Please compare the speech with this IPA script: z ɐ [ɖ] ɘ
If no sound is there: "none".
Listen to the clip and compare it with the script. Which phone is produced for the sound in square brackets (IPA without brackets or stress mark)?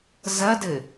d